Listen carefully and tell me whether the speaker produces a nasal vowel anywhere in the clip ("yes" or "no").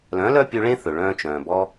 yes